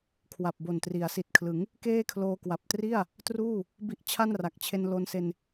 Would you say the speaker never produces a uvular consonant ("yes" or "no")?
yes